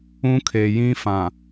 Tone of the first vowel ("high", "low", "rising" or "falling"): high